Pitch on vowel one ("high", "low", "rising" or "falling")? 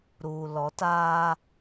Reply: low